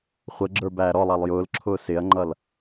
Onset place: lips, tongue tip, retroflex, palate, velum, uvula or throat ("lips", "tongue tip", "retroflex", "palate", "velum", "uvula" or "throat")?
uvula